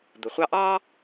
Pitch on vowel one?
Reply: low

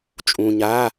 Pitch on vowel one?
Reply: low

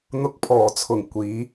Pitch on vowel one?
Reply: rising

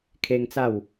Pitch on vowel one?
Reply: high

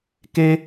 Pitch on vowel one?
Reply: high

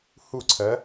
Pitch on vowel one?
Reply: falling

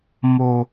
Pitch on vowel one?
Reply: low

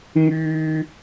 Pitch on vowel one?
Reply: high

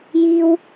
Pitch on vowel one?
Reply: high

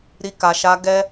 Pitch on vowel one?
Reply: high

